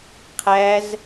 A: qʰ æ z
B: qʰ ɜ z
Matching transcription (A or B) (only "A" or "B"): A